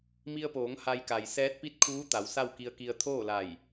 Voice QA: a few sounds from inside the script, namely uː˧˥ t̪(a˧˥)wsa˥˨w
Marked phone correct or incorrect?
incorrect